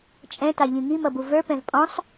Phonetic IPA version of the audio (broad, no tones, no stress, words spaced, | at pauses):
t͡ʃʼɛ̃tɑʎĩ ŋimʌbu və˞pɛ̃v pʼɔ̃sˤ